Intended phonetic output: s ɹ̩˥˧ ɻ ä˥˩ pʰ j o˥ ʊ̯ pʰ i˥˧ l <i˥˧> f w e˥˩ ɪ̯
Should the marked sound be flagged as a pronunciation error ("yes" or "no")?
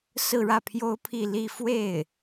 no